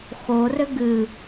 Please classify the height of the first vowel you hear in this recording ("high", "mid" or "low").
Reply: mid